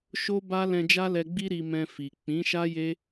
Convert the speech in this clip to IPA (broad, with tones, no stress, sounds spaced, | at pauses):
ʃ o˦ b a˦ l ɛ̃˧ d͡ʒ a˦ l ɛ˧ ɡ͡b i˦ ɾ i˧ m ɛ̃˧ f i˨ k͡p ĩ˨˦ ʃ a˦ j e˦